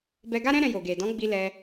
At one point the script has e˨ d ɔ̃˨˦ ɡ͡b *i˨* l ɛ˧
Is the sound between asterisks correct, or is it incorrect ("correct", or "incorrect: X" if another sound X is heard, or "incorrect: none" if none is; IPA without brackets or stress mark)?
incorrect: i˧